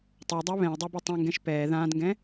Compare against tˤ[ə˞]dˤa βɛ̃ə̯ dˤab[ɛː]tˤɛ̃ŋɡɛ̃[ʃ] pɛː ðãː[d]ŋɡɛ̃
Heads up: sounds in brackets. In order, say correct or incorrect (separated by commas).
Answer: correct, incorrect, correct, correct